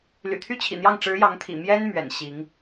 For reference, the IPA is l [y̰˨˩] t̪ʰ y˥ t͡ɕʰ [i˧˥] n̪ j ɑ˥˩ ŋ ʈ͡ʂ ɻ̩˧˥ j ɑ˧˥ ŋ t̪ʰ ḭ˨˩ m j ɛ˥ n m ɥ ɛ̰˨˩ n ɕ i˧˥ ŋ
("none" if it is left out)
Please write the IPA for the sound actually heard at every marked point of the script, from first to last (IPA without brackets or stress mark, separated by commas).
y̰˨˩, ḭ˨˩